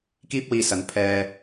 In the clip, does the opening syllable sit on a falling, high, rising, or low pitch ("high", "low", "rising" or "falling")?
high